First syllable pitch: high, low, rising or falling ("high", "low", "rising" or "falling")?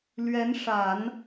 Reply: rising